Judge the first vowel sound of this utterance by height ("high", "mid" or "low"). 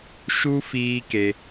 high